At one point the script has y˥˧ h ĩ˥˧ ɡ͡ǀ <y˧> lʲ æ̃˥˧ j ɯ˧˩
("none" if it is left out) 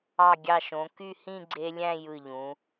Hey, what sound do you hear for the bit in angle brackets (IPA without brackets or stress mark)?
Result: e˧